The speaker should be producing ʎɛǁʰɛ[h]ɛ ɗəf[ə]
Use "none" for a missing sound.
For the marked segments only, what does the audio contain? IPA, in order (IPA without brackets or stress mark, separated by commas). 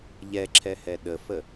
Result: h, ə